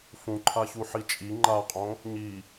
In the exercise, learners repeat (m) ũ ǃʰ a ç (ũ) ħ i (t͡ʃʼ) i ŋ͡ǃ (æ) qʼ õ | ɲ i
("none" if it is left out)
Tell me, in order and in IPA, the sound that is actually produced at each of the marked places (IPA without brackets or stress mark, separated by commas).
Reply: f, u, t͡ʃʼ, a